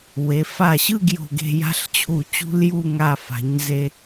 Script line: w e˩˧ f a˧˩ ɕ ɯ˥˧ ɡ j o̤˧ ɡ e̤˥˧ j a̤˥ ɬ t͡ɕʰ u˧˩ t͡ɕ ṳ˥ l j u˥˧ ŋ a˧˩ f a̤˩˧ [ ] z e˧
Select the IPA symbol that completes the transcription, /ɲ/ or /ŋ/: ɲ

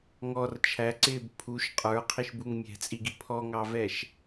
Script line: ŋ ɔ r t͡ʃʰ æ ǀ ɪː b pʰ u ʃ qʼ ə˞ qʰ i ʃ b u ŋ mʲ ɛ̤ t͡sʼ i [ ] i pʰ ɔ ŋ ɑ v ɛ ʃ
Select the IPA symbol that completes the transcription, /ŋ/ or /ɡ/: ɡ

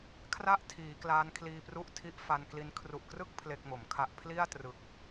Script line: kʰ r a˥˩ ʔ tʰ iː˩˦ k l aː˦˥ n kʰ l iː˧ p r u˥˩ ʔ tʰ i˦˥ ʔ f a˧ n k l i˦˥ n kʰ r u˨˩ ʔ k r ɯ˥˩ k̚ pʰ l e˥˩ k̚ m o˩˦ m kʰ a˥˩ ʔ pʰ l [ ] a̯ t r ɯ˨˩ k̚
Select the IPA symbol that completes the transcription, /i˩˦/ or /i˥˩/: i˥˩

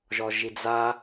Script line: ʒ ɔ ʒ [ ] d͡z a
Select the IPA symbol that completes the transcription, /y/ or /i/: i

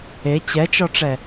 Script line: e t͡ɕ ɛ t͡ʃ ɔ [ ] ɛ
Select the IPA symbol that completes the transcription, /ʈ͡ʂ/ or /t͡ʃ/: ʈ͡ʂ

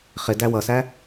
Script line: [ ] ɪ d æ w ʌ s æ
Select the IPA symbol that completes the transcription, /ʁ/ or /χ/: χ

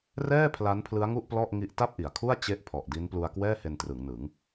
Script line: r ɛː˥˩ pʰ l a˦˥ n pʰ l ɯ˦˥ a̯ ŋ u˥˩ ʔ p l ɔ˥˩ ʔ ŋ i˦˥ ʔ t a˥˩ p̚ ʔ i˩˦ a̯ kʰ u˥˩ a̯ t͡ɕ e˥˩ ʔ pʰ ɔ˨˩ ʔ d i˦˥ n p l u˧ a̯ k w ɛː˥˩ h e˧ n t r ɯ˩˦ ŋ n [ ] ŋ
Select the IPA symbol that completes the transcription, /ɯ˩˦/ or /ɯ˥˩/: ɯ˩˦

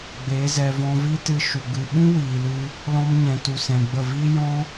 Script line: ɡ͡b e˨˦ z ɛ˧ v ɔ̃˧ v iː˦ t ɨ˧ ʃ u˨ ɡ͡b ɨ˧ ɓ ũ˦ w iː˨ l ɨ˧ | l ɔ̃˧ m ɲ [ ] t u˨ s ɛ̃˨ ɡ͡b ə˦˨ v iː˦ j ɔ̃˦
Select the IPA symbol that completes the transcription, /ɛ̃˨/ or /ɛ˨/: ɛ̃˨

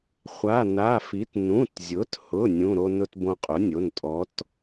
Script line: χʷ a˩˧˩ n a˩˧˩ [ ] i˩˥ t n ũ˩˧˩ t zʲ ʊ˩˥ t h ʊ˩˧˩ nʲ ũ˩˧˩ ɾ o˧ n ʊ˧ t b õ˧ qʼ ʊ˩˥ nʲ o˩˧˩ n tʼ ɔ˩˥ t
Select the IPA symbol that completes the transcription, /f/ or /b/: f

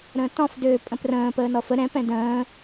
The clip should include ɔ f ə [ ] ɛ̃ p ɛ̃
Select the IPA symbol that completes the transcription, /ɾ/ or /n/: ɾ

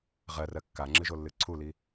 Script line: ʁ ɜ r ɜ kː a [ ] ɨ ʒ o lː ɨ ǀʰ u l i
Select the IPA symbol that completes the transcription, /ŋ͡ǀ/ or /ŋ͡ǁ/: ŋ͡ǁ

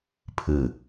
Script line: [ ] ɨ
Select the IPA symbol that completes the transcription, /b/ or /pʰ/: pʰ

